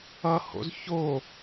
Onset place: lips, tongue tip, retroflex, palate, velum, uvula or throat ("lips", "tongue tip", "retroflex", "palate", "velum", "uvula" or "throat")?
throat